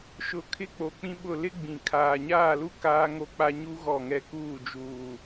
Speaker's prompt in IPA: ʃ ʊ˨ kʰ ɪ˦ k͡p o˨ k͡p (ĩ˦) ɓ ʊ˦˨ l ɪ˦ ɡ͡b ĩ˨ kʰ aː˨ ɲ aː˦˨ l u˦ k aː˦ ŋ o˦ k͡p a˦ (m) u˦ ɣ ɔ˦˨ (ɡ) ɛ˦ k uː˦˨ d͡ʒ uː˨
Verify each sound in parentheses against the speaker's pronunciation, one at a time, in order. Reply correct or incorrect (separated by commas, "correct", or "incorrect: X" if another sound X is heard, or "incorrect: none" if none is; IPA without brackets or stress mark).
correct, incorrect: ɲ, incorrect: ŋ